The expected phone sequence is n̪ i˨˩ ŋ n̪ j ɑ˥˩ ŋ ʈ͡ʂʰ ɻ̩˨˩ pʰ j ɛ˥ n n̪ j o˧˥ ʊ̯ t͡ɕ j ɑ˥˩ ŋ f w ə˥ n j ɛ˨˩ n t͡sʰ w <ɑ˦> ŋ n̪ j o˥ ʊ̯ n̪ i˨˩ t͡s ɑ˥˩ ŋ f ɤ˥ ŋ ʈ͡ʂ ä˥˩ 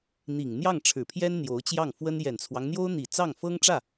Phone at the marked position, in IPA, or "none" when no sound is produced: ɑ˦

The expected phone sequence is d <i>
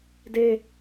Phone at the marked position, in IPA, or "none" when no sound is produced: e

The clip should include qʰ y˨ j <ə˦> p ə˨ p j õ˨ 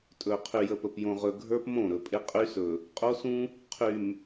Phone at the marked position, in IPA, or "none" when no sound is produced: ə˨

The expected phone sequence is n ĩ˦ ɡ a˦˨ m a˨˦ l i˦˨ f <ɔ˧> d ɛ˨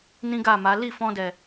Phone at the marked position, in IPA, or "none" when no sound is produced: ɔ̃˧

